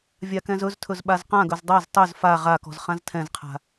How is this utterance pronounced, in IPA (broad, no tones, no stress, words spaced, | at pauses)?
vʲakɛ̃zɵztʰɵz ɓazqãɡɵz dˤaz tˤɵz fa ʁakɔ̤z χãztʰɛ̃zqʰa̤